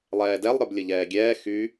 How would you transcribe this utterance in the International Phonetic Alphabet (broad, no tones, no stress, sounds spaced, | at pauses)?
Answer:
lˠ ɛː d ɛ lˠ ɾ ə˞ b lʲ ə ʎ ɛː ɡʲ ɛː x y